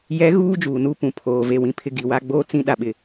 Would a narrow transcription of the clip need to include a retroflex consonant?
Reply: no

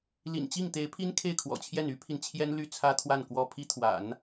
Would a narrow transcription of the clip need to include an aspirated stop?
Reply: yes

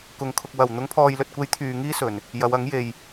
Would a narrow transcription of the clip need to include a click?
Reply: no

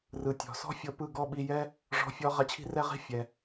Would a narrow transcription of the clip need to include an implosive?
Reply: yes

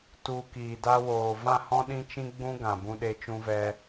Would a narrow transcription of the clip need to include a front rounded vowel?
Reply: no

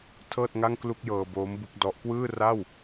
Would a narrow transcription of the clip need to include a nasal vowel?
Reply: no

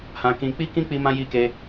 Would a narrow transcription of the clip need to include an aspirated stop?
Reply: no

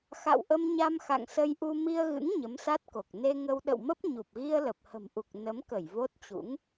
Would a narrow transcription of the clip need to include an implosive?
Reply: yes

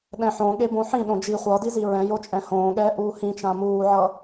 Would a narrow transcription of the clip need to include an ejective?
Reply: yes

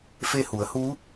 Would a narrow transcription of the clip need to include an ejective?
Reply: no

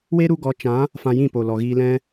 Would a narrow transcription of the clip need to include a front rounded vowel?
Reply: no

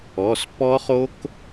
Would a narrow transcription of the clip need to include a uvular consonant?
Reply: yes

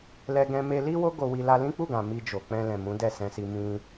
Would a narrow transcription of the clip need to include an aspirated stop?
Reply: no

